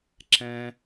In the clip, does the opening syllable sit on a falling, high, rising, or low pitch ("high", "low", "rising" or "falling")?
low